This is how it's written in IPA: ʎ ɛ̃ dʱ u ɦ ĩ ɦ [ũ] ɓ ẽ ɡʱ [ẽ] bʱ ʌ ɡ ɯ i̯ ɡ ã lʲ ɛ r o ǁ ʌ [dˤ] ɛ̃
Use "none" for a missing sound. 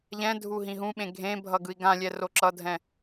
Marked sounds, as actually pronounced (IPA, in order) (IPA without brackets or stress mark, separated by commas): ũ, ẽ, dʱ